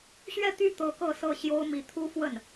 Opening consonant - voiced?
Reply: no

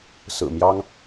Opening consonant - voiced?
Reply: no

